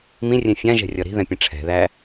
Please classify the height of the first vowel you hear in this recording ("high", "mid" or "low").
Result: high